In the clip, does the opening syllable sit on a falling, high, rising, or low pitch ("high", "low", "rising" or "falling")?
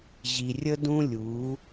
low